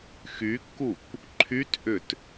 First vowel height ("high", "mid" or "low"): high